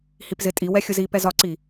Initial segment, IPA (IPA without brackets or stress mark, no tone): h